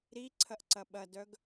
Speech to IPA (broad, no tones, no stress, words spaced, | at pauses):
ɾiǀʰɐʔǀɐ ɓɐdœɡ